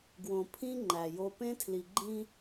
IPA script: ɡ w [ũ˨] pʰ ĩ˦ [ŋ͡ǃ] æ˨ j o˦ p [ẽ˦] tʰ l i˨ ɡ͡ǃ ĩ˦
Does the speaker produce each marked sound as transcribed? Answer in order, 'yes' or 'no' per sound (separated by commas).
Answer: no, yes, yes